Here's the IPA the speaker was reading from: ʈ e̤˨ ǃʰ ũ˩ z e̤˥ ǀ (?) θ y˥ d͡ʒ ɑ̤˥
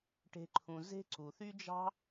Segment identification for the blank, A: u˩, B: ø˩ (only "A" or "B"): A